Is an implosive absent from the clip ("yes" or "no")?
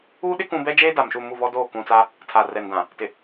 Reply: no